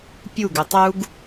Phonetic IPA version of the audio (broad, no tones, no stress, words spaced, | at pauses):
pʲuɡ ʉtˤuɡ